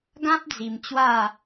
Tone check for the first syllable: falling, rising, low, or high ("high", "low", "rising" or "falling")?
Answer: high